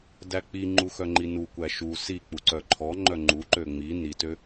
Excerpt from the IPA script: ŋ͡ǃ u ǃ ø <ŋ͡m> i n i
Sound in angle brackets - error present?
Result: no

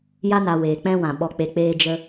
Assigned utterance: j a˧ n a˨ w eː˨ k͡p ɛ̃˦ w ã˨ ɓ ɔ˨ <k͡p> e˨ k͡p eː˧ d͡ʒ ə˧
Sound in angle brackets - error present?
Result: no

